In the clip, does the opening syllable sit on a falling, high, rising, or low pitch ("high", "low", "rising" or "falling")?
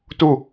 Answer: falling